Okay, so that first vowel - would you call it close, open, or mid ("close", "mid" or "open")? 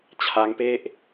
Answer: open